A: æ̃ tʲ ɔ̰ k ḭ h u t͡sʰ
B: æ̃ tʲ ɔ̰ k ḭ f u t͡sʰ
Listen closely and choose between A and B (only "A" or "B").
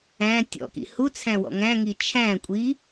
A